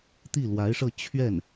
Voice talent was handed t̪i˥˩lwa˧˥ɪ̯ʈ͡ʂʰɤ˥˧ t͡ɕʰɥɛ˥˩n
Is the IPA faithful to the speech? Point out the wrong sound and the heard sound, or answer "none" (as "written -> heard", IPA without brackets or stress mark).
ʈ͡ʂʰ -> ʂ